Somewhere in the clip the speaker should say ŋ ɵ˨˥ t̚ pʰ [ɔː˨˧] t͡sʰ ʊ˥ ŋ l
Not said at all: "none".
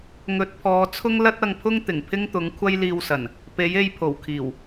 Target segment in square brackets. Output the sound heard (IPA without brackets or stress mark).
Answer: ɔː˨˧